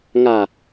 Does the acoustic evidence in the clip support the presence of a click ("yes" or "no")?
no